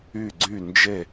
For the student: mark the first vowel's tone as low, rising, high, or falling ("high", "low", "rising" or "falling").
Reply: falling